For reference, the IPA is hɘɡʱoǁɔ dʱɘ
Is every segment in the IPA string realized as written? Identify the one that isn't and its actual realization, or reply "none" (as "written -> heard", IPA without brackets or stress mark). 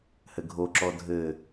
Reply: none